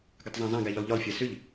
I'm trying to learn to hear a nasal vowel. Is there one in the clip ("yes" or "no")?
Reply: yes